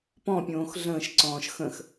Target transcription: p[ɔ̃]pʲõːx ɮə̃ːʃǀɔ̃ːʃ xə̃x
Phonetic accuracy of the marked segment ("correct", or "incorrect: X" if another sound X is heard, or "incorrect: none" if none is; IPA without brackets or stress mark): correct